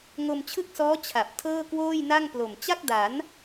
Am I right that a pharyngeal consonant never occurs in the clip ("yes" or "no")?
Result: yes